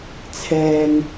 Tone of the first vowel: low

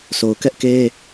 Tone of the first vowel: low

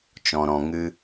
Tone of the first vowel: low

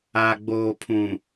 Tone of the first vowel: low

